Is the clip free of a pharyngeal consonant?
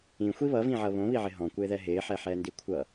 no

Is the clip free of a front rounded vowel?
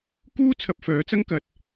no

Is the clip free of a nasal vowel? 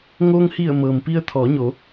yes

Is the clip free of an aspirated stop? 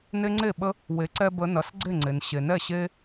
yes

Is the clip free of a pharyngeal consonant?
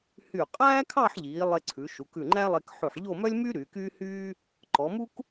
no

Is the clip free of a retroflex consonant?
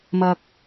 yes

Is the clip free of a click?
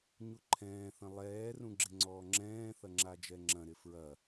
no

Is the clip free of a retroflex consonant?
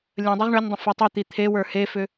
no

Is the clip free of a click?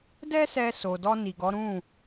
yes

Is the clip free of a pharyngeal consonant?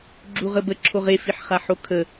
no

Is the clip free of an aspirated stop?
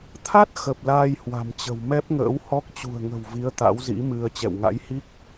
no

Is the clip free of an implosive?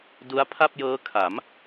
yes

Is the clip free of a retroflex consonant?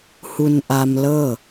yes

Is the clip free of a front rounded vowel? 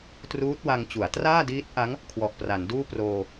yes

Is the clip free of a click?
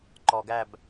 no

